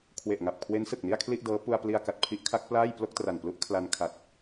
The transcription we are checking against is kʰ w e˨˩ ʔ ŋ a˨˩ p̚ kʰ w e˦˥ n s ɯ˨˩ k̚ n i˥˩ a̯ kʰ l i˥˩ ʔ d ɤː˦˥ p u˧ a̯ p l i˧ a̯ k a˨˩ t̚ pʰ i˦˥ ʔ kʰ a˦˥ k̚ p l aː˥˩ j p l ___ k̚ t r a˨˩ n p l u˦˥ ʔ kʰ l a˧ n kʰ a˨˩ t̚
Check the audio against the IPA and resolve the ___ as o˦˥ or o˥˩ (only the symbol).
o˥˩